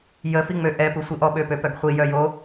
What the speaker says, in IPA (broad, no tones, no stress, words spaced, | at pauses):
jəfiŋ͡mø ʔɛpu sʷiʔɔ ɓøpøpœɡχʷi jœjo